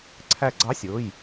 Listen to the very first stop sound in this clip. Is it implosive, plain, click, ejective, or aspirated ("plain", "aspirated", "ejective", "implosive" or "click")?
click